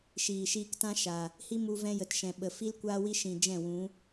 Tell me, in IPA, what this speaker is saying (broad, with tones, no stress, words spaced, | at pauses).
ʃiː˨ʃiː˧ktã˦ ʃa˨ | hi˦mu˧ vɛ̃˧jə˨tʃɛ̃˨ ɓə˨ fi˦lkʷaː˦wi˦ ʃĩ˨ d͡ʒɛ̃˦˨wũ˨˦